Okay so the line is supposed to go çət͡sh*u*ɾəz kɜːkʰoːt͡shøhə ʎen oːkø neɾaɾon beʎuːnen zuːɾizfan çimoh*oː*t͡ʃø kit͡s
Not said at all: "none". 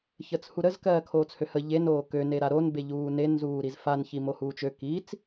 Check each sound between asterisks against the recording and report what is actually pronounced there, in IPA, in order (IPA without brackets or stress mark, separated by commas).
u, uː